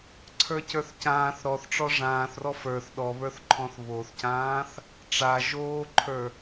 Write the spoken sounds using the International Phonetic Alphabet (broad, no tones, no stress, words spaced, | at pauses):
ǀʰə˞cə˞θcãːθ ɾɔθʈ͡ʂɔ ʐãːθrɔ fə˞θ ɗɔβə˞θǃʰɔ̃θ βoθcãːθ | ʈ͡ʂaʒoːǃʰə˞